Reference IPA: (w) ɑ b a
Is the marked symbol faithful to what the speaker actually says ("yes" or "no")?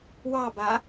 yes